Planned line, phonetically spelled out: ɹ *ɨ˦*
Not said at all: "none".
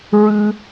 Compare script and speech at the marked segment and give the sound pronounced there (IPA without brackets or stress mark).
ɨ˦